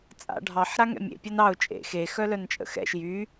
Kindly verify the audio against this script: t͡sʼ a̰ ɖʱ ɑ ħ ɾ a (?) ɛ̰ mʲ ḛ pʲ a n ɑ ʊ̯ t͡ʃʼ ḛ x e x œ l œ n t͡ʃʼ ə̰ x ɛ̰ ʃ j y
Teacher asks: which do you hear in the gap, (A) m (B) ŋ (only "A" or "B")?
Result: B